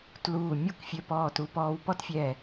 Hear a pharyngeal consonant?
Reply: no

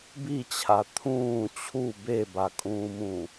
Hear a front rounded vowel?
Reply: no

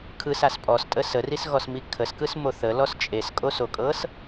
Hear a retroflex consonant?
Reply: no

